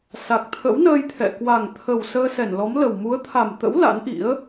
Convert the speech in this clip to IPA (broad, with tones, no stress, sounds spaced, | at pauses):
s a˨˩ k̚ t̪ʰ ə̰˧˥ w n əː˧ j t̪ʰ ɛ̰˧˨ k w a˨˩ ŋ t̪ʰ ə˨˩ w s əː˧ s ɛ˧˩ n l ɔ˨˦ m l ə˨˩ w m u˨˦ ə̯ t̪ʰ a˨˩ m t̪ ə̰˧˥ w l a̰˧˥ n ʔ ḭ˧˥ ə̯